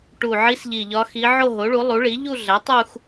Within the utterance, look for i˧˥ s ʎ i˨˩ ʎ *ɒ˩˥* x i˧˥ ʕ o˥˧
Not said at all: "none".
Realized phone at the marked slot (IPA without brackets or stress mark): ɒ˧˥